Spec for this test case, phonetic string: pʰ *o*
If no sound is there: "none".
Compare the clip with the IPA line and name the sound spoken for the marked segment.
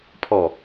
ɔ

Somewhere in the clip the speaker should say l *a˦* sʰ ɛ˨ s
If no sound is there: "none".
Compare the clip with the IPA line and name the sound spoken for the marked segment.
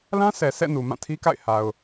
ã˦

